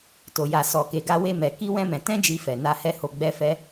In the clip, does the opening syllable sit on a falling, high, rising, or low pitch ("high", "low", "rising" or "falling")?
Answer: low